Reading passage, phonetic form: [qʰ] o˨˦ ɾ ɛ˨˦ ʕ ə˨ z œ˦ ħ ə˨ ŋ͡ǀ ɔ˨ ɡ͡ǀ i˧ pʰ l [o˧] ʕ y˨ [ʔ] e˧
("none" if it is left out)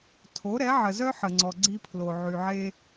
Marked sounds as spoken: tʰ, o˨, ʕ

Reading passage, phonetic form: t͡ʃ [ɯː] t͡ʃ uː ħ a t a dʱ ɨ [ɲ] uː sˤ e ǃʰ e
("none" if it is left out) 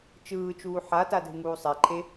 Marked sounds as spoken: ɯː, ŋ

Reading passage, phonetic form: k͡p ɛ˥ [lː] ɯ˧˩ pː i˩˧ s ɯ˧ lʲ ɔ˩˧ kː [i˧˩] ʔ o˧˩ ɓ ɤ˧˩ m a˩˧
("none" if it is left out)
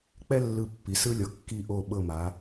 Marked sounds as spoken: lː, i˧˩

